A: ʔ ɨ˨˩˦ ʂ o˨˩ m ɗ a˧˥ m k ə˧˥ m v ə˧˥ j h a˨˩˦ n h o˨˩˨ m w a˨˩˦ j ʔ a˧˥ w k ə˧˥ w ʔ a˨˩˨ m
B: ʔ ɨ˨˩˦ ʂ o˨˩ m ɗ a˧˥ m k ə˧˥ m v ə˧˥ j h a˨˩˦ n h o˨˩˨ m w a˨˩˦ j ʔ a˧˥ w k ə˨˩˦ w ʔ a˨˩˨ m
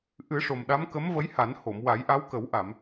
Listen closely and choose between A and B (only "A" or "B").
B